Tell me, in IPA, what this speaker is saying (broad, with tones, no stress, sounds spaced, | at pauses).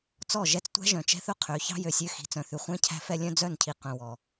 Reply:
t͡s ɔ˦˨ ʒ ɛ˦ t͡s tʷ æ̤˦ ʒ œ̃˨ t͡ʃ ɛ̤˦ θ ɵ˦ qʰ ø˨˦ ç ɑ̤˦ j ø˨ sʲ ø˦ x i̤˨˦ t͡s œ̃˨ θ ʉ˨ χʷ ɛ̃˦ cʰ æ̤˦ f ɛ˦ lʲ œ̃˦ d͡z œ˦˨ n cʰ i˨ q œ̃˨ w ɔ˨